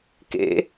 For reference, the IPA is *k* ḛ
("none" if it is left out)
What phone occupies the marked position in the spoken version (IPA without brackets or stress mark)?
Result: k